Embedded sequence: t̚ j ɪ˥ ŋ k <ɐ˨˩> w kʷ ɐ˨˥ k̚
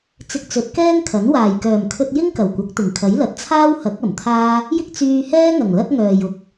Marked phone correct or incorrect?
correct